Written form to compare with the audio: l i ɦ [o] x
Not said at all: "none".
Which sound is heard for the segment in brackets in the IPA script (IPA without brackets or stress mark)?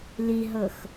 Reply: ɤ